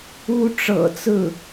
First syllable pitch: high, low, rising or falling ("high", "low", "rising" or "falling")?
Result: high